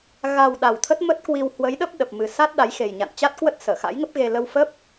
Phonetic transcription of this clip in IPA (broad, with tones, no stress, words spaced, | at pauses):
ɣa˨˩w ɗa˨˩wt̪ʰə˦˥t̚mə˦˥t̚kwi˧w hwə˨˦jɗə˦˥p̚ ɗə˨˩p̚mɨ˨˩ sa˦˥t̚ɗa˨˦jxe˨˩j ɲa̰˧˨nt͡ɕa˦˥t̚kwə˦˥t̚ səː˧˩xa̰˧˥jŋə˦˥p̚ɣe˧ lə˧wfə˦˥p̚